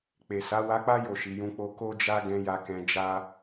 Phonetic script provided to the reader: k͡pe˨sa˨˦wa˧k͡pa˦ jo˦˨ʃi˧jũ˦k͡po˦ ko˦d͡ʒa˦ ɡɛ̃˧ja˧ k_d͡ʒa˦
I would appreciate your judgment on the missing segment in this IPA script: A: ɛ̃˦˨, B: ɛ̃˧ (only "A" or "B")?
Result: B